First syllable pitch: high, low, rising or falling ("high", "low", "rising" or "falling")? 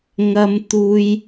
high